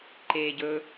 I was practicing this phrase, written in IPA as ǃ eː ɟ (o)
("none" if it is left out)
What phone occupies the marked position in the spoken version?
ɵ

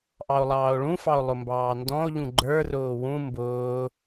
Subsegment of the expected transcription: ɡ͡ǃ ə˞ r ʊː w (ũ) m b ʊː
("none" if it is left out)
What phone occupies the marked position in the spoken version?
ũ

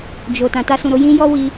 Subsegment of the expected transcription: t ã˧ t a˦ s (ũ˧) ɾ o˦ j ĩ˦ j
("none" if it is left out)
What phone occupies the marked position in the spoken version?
ũ˧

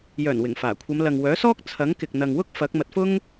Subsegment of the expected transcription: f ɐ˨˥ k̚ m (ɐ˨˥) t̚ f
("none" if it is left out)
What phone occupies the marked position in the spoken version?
ɐ˨˥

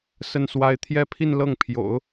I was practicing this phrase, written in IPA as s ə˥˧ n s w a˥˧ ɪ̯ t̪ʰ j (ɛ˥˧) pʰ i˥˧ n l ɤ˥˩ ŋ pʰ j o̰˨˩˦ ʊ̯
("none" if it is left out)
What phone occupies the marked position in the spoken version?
ɛ˥˧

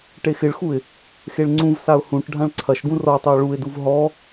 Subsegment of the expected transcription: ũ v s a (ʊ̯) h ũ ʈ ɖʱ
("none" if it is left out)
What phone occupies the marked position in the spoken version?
ʊ̯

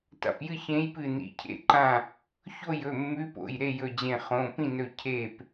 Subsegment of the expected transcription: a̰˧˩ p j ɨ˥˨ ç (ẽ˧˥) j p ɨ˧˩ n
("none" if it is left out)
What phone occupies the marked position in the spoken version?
ẽ˧˥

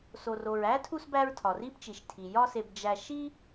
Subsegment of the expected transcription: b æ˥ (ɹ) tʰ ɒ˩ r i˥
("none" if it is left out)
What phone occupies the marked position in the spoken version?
ɹ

